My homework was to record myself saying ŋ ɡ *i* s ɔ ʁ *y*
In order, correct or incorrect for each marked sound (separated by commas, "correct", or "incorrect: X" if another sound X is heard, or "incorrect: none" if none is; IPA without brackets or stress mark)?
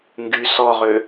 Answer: incorrect: y, incorrect: ø